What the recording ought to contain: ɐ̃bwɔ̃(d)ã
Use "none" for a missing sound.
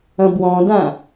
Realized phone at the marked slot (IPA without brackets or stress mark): d